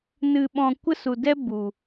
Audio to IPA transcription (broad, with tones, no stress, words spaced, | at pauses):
nɨ˧ ɓɔ̃˧ kʷə˦su˨dɛ˦ bu˨